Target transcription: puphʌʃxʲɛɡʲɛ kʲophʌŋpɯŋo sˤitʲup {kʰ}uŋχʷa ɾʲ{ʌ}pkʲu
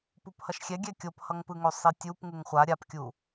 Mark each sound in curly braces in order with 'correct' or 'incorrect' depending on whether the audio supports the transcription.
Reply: incorrect, incorrect

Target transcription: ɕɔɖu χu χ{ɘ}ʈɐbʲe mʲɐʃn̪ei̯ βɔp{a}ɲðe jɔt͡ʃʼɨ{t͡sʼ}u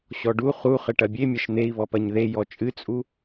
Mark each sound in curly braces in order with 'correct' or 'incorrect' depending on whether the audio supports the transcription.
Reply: correct, incorrect, correct

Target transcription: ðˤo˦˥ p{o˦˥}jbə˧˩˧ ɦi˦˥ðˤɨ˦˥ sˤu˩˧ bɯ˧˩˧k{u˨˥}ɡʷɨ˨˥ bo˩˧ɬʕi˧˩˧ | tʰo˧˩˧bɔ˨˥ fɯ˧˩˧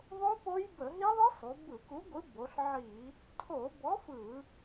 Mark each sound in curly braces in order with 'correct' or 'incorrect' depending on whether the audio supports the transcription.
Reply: correct, correct

